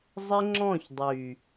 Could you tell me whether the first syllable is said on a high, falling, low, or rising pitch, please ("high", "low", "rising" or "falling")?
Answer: high